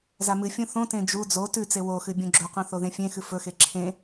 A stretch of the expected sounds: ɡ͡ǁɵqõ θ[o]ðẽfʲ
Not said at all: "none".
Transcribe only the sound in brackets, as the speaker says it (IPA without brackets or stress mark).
o